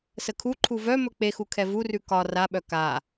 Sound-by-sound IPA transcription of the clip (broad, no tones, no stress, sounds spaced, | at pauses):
s ə kʰ u ǃʰ u v œ m ɵ k͡p e x u kʰ ɛ v u r ʉ k ɒ r a ɓ œ k a